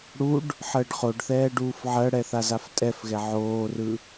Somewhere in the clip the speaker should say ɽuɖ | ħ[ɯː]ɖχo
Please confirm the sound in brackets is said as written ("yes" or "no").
no